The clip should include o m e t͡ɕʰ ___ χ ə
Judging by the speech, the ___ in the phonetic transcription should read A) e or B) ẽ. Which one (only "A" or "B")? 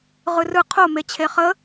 A